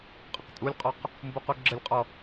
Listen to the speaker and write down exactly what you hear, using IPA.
qʼ ə q tʼ u lʲ qʼ ɔ q | m b u q u ɡ͡ǁ ə lʲ qʼ ɔ

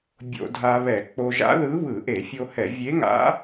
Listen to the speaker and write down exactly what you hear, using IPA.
bʲ o̰˧˩˧ dʱ a˧ β ɛ˧˩˧ k͡p o˧ ʒ a̰˧˥ ð ɯ˧˥ β ɯ˧˩˧ ʔ e˧˩˧ fʲ o˧ h ɛ˧˩˧ vʲ e˧˥ ŋ a̰˧˥

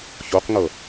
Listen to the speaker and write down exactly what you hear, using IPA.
ç o q ŋ ɤ

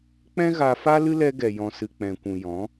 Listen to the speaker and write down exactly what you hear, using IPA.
k͡p ɛ̃˦ ɣ a˧ f a˦ l ɨ˦ l ɛ˧ ɡ ɛ˨ j ɔ̃˨ s ɨ˨ k͡p ɛ̃˨ kʷ ũ˨ j ɔ̃˨˦

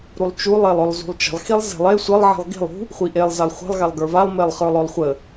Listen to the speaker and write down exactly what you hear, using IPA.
ɾ u lˠ t͡ʃ u lˠ e lˠ œ lˠ z ṳ lˠ t͡ʃ ə̤ lˠ x i lˠ z e̤ lˠ e sʷ ə lˠ ʕ i̤ lˠ ɡ i̤ lˠ ṳ | χʷ i ʔ e lˠ z a lˠ χʷ ə̤ lˠ ɣ a lˠ ɡ ə˞ v a lˠ m e lˠ χ ə˞ lˠ œ lˠ χʷ ə

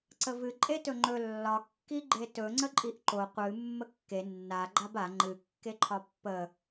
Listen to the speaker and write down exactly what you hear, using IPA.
ǀ ə v ɨ ǃʼ e t ɵ ŋ͡ǃ ɵ lː ɒ kː i ɡ͡ǃ e t ɵ ŋ͡ǀ ə ǃʼ i ʔ ǃ o qʷ ɨ mː ə kː e nː a ɡ͡ǃ a b a ŋ͡ǃ ɨ kː e ǃʰ ɒ pː ə

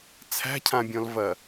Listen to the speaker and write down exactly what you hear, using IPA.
t͡sʰ æ̤ cʰ ã bʲ ɔ̃ l v ɐ

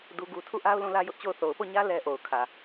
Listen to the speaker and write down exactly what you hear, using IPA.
d u˦ ɡ u˦ tʰ u˦˨ ʔ a˦ ʊ̯ l ũ˦˨ l ä˦ j ʊ˦ ʔ t͡ɕ o˦˨ ʊ̯ θ o˨ ʊ̯ p o˦˨ ɲ ä˦ l ɛ˦ ʔ o˨ ʊ̯ kʰ ä˨

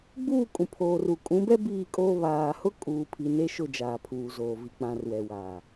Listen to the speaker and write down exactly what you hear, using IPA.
ɡ͡b uː˦˨ kʼ ũ˨ pʰ oː˨ r u˨ kʼ ũ˨˦ b ɛ˦ b iː˦˨ kʼ oː˦ β aː˨ h ʊ˦ kʼ uː˨ pʰ i˨ n e˦ ʃ ʊ˦˨ d͡ʒ aː˨ pʰ uː˨ z oː˨ v i˨ k͡p ã˨ r w ɛ˨ w aː˨

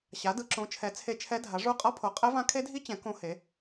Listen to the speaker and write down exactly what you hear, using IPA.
ɕ a˨˥ d ɯ˨˥ ǁ õ˨˥ t͡ʃʰ ɛ˨˥ t͡sʰ e˦˥ t͡ʃʰ ɛ˦˥ dʱ a˨˥ ʐ u˦˥ qʼ ʌ˦˥ pʰ o˨˥ qʼ ɛ˦˥ v ã˦˥ kʰ e˦˥ dʱ i˦˥ t͡ɕ ɛ̃˨˥ k õ˦˥ h e˨˥

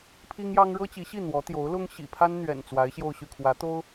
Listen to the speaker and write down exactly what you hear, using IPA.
pʰ i˥ ŋ j ɑ˥ ŋ ɻ ɤ˥ t͡ɕ i˧˥ ɕ i˥˩ n̪ w ɔ˧˥ t̪ j o˧˥ ʊ̯ l ʊ˥ ŋ ɕ ḭ˨˩ pʰ a˥ n n̪ ɥ ɛ̰˨˩ n t͡s w a˧˥ ɪ̯ ɕ j o˥˧ ʊ̯ ɕ y˥˩ kʰ w ä˧˥ t̪ o˥ ʊ̯

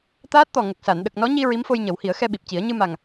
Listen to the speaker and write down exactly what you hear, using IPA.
t̪ aː˦˥ t̚ t̪ ɔ˨˩ ŋ ə˨˩ k̚ s a˨˩˨ n ɗ ə˨˩ k̚ n ɔ˧˥ ɲ i˧ ɹ i˧˥ m f o˧ j ɲ ə˨˩˦ w h i˨˩˦ ə̯ x ɛ˧ ɓ i˨˩ p̚ c i˨˩˦ ə̯ ɲ ɨ˧ m a˨˩ ŋ

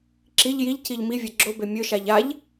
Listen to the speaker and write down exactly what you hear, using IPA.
ǁ i ʎ j i ʎ c i ʎ m i vʲ ɛ ɡ͡ǁ o b e mʲ ɵ ʃ a ʎ a ʎ

